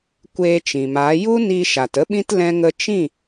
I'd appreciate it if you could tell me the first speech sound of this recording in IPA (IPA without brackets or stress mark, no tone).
kʷ